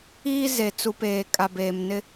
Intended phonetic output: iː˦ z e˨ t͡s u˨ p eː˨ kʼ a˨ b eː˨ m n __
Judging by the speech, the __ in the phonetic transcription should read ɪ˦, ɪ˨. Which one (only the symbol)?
ɪ˦